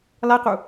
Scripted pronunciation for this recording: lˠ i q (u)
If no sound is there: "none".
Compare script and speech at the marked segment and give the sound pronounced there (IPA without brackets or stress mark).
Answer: u